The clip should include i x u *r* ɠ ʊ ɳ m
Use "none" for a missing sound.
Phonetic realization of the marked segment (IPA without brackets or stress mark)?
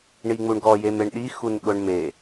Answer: n